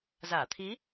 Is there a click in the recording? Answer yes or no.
no